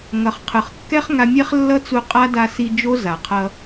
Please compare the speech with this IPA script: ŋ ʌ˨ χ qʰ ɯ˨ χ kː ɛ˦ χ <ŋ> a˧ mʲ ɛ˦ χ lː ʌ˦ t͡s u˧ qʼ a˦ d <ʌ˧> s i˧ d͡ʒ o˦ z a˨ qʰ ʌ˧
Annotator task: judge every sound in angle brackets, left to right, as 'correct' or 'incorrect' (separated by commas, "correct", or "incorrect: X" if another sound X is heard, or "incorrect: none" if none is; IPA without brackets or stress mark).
correct, incorrect: a˧